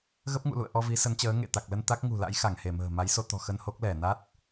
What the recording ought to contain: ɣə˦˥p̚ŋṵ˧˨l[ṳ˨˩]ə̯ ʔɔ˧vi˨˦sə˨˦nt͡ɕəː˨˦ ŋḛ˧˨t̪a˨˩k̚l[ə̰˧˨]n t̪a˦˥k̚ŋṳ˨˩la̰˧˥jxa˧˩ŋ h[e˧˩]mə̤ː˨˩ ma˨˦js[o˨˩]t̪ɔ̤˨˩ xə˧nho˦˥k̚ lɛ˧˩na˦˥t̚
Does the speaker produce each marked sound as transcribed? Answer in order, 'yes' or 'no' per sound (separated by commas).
no, no, yes, no